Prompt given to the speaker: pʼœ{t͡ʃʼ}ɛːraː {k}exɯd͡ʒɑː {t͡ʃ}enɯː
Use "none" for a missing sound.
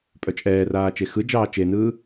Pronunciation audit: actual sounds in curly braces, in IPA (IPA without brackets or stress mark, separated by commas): t͡ʃʼ, t͡ʃ, t͡ʃ